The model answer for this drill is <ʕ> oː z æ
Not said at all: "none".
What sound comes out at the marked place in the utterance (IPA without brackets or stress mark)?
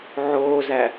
ʕ